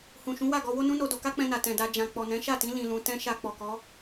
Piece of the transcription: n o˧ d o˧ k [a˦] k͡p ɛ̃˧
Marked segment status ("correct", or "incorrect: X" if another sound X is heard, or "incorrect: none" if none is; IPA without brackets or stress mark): correct